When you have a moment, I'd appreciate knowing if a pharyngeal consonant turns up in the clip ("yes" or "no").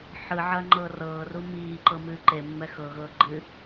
yes